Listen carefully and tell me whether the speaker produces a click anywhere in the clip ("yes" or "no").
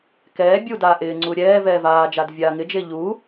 yes